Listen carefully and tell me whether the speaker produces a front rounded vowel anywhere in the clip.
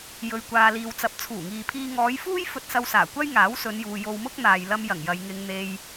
no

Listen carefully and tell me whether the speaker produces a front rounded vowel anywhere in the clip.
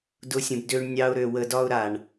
yes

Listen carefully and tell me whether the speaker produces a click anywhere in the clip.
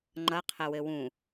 yes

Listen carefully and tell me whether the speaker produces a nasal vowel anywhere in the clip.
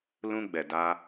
yes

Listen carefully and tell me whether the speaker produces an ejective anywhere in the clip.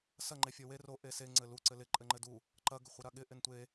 yes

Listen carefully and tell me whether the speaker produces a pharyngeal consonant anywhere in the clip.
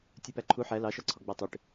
yes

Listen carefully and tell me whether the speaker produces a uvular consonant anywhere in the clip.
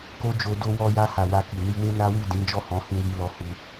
no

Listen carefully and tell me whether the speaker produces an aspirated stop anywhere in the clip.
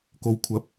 yes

